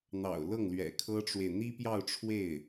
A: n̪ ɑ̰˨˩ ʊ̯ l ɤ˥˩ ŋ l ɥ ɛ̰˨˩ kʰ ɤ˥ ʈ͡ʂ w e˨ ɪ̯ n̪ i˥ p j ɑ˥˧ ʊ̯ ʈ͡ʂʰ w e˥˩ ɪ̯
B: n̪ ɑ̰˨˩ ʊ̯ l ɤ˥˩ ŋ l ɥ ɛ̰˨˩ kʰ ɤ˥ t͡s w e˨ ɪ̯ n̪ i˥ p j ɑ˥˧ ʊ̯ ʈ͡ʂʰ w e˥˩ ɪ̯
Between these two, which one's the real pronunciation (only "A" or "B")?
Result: A